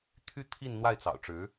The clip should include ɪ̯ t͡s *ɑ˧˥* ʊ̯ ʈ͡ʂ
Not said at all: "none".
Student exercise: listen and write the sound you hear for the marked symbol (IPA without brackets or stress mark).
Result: ɑ̰˨˩